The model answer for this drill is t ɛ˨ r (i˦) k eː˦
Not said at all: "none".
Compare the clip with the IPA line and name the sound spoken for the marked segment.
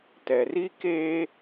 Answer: i˦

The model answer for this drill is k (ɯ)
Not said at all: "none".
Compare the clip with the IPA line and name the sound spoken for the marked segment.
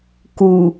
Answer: u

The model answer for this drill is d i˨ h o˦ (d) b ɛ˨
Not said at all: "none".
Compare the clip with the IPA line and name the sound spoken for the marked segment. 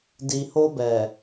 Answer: none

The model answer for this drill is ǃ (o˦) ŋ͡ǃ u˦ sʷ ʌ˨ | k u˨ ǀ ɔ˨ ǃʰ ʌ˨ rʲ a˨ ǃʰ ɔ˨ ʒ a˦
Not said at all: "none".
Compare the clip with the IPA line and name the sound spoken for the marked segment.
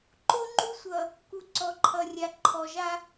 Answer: o˦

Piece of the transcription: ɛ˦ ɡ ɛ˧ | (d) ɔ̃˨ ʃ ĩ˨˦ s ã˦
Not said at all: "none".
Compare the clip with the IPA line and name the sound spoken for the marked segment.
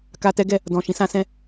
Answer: d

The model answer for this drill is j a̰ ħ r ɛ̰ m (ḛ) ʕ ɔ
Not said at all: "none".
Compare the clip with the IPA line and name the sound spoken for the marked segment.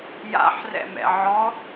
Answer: ɛ̰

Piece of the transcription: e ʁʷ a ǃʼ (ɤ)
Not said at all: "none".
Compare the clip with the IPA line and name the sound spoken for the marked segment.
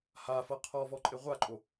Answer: o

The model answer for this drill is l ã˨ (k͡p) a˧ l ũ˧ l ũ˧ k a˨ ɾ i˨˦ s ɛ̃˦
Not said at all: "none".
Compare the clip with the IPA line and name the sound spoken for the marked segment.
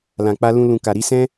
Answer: k͡p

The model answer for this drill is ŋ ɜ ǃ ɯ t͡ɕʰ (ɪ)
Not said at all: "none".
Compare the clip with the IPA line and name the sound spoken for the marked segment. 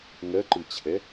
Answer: ɛ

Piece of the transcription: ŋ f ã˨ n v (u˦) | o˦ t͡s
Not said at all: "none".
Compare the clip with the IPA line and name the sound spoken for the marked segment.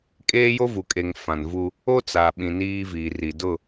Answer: u˦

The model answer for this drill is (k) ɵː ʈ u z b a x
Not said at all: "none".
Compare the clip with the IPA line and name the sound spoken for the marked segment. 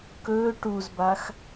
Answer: k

